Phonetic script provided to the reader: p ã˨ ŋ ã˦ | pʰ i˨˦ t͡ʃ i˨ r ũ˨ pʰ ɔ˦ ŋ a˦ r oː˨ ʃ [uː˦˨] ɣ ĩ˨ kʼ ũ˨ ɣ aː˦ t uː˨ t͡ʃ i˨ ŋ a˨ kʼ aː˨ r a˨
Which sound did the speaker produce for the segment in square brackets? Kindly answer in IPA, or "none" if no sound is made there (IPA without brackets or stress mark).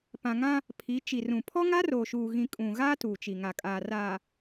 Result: uː˨